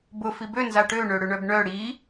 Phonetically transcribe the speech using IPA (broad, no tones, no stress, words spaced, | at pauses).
bʊ fibø nzaʈø ɳøɽʏɳœbɳœ ɽi